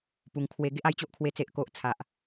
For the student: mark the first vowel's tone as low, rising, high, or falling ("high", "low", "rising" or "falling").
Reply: low